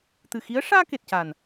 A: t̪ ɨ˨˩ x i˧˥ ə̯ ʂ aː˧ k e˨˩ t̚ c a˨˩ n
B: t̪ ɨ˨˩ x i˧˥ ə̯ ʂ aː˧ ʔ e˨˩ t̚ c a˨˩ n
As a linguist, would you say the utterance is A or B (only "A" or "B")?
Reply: A